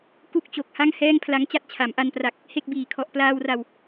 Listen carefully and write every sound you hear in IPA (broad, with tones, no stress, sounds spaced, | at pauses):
k u˥˩ k̚ t͡ɕ o˨˩ k̚ h a˥˩ ŋ h ɛː˥˩ ŋ pʰ l a˦˥ ŋ t͡ɕ a˥˩ t̚ t͡ɕʰ a˩˦ m ʔ a˧ n p r a˨˩ k̚ | h e˥˩ k̚ b iː˨˩ kʰ ɔ˨˩ ʔ p l aː˧ w r a˨˩ w